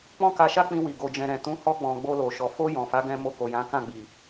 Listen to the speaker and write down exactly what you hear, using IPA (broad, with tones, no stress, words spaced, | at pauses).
k͡pɔ̃˦ka˧ʃa˦ k͡pĩ˧wi˨ ɡo˨d͡ʒɛ̃˨ɾɛ̃˨ tũ˨˦ hɔ˧ɡ͡bɔ̃˨ ɡ͡bo˧lo˨ʃɔ˨ fo˧ jɔ̃˨fa˨˦ɡɛ̃˧ mo˧ko˨jã˨˦ kã˦˨ɡ͡bi˨